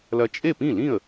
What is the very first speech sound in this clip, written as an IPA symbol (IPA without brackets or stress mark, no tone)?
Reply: l